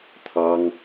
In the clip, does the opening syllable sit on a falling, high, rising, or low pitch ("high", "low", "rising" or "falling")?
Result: high